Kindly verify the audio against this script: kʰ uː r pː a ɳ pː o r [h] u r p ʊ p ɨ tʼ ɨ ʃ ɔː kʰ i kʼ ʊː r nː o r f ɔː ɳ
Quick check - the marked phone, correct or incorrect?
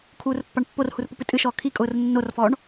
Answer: correct